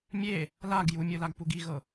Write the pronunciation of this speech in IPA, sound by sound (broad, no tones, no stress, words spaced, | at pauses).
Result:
mʲe | laɡ jumʲɯlaɡpuɡ iɣɤ